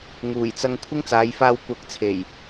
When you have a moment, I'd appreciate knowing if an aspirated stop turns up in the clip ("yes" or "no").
yes